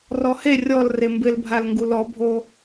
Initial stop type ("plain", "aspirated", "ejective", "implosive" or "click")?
plain